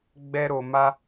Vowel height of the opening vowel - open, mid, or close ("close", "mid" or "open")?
mid